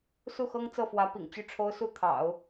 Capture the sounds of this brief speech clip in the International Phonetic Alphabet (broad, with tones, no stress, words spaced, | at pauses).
su˥˩xɤ˥ŋ t͡sɤ˥˩fwä˧˥pḭ˨˩ŋt͡ɕy˥˩ ʈ͡ʂʰo˥ʊ̯su˥˩t̪ʰɑ̰˨˩˦ʊ̯